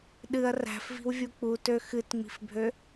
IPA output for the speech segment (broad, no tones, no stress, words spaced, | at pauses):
ɗɨɐ̯ ræ̤fvi̤wvʲu k͡putø xɨtŋ͡mi̤fbʱø